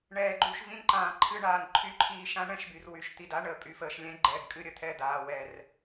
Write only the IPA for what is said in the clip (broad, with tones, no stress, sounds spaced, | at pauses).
ɳ ɛː˨ ɡ͡ǃ u˨ ʃ v ĩ˦ n ǃ ãː˨ ǃʰ ɨ˦ ɳ aː˨ n ǃʰ y˦ ǃʰ iː˦ ʃ ã˦ ɳ ɛ̃˦ ʃ b y˨ r w y˨ ʃ t̪ i˨ d a˦ ɳ əː˨ pʼ y˨ f əː˨ ʃ lʲ ɛ̃˦ ɡ͡ǃ ɛː˨ ɡ kʼ ɨ˦ ɾʲ ə˨ t̪ʰ ɛ˦˨ d̪ aː˨ w ɛː˨ r